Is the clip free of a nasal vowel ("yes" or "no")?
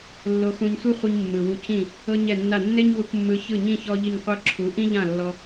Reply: no